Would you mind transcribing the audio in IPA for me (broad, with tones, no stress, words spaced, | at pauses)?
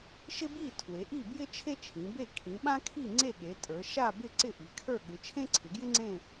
ʃɪ˥ bi˥˨ tʰwe˩˧ʔi˥˨bjɪ˥ t͡ʃʰe˥t͡ʃʰĩ˩˧be˥˨ kʰĩ˩˧ɓã˥kʰi˥˨ŋ͡ǀe˥˨ ɠe˩˧tʼə˞˩˧ ʃa˥˨bɪ˥˨ ǀɪ˥˨ʔi˩˧kʰə˞˥˨ ɠɪ˩˧t͡ʃʰẽ˥ǀʰɪ˩˧ɡjɪ˥ ŋ͡ǀẽ˥˨